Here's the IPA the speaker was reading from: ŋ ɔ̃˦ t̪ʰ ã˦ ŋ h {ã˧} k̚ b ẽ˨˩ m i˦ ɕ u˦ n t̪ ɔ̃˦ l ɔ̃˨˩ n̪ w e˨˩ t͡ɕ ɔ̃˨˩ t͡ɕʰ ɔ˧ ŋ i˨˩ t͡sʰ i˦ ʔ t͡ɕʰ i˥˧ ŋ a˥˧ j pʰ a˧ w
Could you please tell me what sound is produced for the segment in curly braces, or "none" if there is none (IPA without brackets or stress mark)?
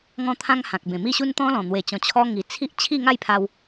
ã˨